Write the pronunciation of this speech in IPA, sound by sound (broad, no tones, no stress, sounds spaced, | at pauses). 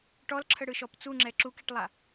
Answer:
ʈ ɔ l ǁʰ ə ɽ ɯ ʃ ɔ p t͡s u ŋ͡ǁ ɛ ǁ u k i ʈ lˠ a